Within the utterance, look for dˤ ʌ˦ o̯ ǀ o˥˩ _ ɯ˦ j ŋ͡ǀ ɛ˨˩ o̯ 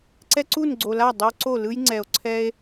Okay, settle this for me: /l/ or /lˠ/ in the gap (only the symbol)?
l